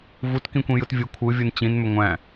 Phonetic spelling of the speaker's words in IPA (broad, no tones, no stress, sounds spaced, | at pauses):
v u t k ĩ kʷ ĩ j ɯ t vʲ ɯ kʷʰ ɯ vʲ ɯ n t͡ɕ ĩ n m ʏ ŋʷ æ̃